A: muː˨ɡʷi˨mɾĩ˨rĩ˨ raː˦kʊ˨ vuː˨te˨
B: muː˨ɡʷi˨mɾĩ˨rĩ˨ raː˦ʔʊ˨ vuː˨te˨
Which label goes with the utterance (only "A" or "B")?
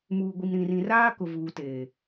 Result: A